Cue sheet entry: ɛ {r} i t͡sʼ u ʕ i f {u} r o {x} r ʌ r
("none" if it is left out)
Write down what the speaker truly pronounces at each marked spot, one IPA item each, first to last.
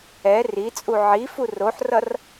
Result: r, u, ħ

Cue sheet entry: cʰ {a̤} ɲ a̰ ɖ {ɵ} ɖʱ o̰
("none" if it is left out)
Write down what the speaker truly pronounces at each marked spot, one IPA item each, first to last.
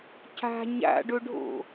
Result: a̤, ɵ

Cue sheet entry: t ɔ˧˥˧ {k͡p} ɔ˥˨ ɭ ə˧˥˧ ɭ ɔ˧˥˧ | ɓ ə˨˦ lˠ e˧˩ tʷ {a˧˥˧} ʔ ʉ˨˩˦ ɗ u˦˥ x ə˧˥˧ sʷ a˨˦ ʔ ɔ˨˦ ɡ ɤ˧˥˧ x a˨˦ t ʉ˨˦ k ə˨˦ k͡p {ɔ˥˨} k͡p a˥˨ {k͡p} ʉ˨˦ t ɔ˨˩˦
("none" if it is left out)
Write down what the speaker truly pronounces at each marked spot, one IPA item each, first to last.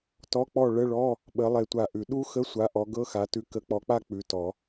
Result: k͡p, a˧˩, ɔ˨˦, k͡p

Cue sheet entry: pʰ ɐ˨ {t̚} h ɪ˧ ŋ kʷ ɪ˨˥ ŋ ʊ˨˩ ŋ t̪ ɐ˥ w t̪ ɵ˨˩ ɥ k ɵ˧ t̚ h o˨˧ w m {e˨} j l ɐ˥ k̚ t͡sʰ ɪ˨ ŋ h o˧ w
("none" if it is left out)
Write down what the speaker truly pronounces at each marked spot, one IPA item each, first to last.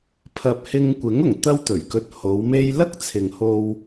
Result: p̚, e˥

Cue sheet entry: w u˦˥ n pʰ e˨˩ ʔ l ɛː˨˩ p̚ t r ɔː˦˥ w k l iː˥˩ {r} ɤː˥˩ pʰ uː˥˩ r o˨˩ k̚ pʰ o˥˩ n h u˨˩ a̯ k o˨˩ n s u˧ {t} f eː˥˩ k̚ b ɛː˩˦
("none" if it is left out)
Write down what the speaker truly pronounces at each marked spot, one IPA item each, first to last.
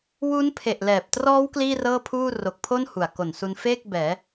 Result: r, n

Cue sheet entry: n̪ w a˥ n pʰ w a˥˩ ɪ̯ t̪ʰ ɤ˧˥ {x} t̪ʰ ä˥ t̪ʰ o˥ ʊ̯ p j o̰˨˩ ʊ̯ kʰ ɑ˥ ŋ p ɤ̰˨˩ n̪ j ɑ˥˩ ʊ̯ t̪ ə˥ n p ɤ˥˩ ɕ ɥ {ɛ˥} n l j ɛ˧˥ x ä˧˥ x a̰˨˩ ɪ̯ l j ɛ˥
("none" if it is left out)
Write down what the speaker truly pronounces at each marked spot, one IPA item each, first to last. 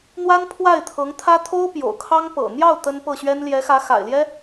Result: ŋ, ɛ˥

